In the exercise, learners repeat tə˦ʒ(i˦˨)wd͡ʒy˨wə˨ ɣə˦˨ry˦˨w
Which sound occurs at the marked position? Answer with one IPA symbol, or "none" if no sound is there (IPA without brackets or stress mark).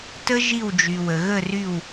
i˦˨